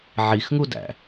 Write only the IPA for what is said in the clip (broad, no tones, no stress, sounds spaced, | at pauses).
ʕ i x ŋ u d æ̰